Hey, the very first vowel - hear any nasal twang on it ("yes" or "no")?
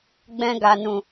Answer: yes